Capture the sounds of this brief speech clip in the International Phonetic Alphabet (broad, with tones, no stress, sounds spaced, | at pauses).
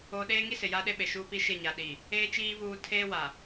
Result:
oː˦ ɗ eː˦ ŋ i˦ s ɪ˨ j aː˦ ɗ e˦ ɓ e˨ ʃ uː˦ p i˦ ʃ ɪ˦˨ ɲ a˨ ɗ i˨ | eː˦ t͡ʃ iː˦ β uː˦ tʰ eː˦ w a˨